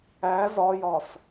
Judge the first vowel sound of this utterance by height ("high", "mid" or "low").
low